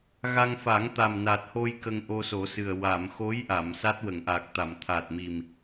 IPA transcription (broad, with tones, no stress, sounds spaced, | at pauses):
ɣ a˧ ŋ f a˨˩˦ ŋ t̪ a˨˩ m n a˨˩ t̚ h o˧ j k ə˧ ŋ ʔ o˧ s o˨˩˦ s ɨ˨˩ ə̯ w a˨˩˨ m x o˧˥ j ʔ a˨˩˨ m s a˦˥ t̚ w ə˨˩˨ ŋ ʔ a˨˩ k̚ t̪ a˨˩˨ m t̪ʰ a˨˩ t̚ m i˨˩ m